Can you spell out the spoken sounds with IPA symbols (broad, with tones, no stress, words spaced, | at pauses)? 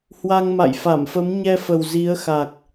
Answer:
hwa˧ŋma̰˧˨jfa˧˩mfə˨˦m ɲɛ˧fə˨˩w zi˨˦ə̯xa˨˩k̚